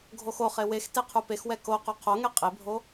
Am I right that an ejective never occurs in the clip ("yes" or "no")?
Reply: no